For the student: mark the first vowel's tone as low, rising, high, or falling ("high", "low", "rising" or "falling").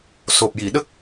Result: low